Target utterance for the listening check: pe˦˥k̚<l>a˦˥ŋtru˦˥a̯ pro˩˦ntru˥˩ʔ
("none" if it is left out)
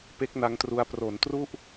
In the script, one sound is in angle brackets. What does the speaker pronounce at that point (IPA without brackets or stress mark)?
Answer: n